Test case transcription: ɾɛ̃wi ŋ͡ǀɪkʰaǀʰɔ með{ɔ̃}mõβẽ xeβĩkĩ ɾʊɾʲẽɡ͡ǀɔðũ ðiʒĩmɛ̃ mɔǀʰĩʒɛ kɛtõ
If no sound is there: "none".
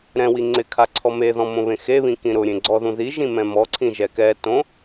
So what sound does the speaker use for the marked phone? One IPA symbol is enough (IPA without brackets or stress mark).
ɔ̃